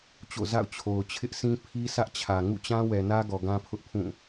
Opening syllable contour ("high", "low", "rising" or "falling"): falling